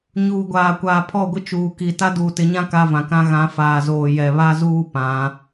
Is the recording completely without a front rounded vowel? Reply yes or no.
yes